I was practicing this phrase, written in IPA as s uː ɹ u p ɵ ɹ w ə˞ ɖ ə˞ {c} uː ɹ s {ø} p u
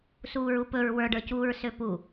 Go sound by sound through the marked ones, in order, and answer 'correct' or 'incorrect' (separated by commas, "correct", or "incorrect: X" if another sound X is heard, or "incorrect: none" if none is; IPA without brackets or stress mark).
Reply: correct, correct